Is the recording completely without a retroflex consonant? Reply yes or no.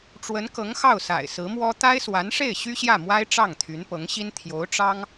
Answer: no